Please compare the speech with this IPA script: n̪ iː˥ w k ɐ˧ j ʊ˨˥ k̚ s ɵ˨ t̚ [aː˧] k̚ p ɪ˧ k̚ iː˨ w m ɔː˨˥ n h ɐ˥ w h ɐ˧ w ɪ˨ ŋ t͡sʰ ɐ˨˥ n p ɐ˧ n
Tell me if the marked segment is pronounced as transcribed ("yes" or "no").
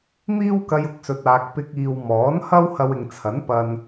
no